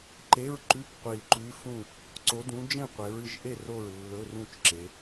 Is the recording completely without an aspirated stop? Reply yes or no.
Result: yes